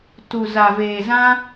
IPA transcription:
tu˨za˨veː˨zã˧

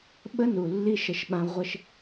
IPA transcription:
ɓə˦nu˨lːi˦ ʃə˦ʃɓã˦ ʁʷə˦ʃ

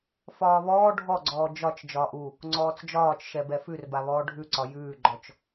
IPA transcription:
fɒːβɔː ɖʱɔɡ͡ǀɔː d͡ʒɒt͡ʃ d͡ʒɒːʔu | ŋ͡ǀɔːt͡sd͡ʒɒːt͡ʃ ʃɛbɛfʉrba βɔːɖʱʉǀɒ jʉːɡ͡ǃɔt͡ʃ

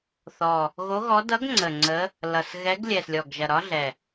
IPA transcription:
θɔ˨˩ | ɣo˧˥ɣɔ˧˥ dʌ˧˥ɡŋ͡ǀə˨˩ ŋ͡ǀə˧˥ | lʌ˨˩sɣɛ˧˥ɡ lʲɛ˨˩slʲɔ˨˩ɡʒɐ˨˩ ɾɒ˧˥ ɮɛ˨˩

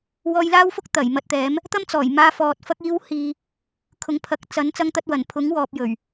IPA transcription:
wɔː˧jlaː˥wfʊ˥k̚ t̪ɐ˨˩j mɐ˧t̚t̪ɛː˨˥m | t̪ɐ˥mt͡sɔː˨˩j maː˧fɔː˨t̚ fɐ˧k̚iː˧whiː˨ | kʰʊ˨˧ŋpʰɐ˨˥k̚ t͡sɐ˨˥n t͡sɐ˧ŋt̪ɐ˧t̚wɐ˨˩n pʰʊ˨˥ŋwɔː˨p̚jɵ˨˩ɥ

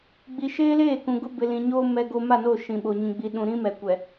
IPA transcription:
ɡ͡bi˨ʃeː˦leː˦˨kũ˨ ɡʊ˦bɪ˨lĩ˨ɲoː˦ mɛ˦ɡo˦ ma˦˨no˦˨ ʃĩ˨ɓo˨ ɲĩ˨ɡ͡bi˨ ɗũ˨ɾĩ˦ mɛ˨kʷɛ˨

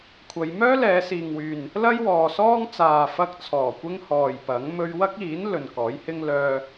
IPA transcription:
kʷʰɐ˨˧j mœː˥lɛː˨˧siː˨ŋwyː˨n | lɐ˥jwɔː˨sɔː˥ŋt͡saː˨ fɐ˧k̚t͡sʰɔː˨˩ kʷɪ˥ŋhɔː˨jpɐ˨˥ŋ mɵ˧ɥwɐ˥k̚iː˨˥n lɵ˨nkɔː˨˥jhɪ˥ŋ lœː˧

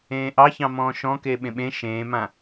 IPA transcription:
ẽːʔɑçɑ̃mɔ̃ː ʃɔ̃ke ɓẽɓẽ ʃẽːmã

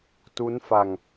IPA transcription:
tu˦˥nfa˧ŋ

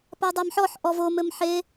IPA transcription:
padˤamħɔħ ʔɔvo mɘmħe

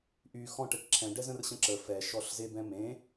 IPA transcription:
ʔy xɔ̃ʈ ɛʈǁʰɛ̃ ɖɛzə̃r ɕə̃ǁə fɛ ʃɔɬzebɛ̃mẽ

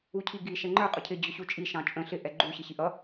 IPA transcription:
ucʰiɡi ʃɛŋ͡ǃə˞ qʼʊcʰɪ d͡ʑʊɕut͡ʃʼi ʃɑ̃t͡ʃʼə̃ ɬɪ ʔɛɡ͡ǃu ɕɪɕiʔʌ

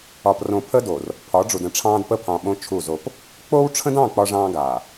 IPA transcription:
ɒ˨prõ˨ pʰə˦do˨r | pʰɒ˨˦ɖ͡ʐu˨də̃˨˦ʈ͡ʂʰɑ̃ː˦d pə˦pʰɑ̃˨ɓõ˦ t͡ʃʰu˦˨zo˦p | k͡po˦w ʈ͡ʂʰə̃˦dɑ̃˦˨ k͡pɒ˦ʐɑ̃ː˦ɡaː˨

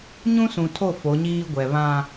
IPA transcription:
ɲũ˦sũ˨tʰo˦˨ fo˨˦ɲiː˦ɡʷɛ˨ βã˦

